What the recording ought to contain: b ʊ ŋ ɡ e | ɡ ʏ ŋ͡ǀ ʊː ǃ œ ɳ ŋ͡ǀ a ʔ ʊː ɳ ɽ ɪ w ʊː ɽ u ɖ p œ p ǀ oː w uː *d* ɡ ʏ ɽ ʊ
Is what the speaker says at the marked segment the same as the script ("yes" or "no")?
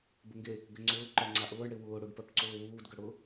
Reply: yes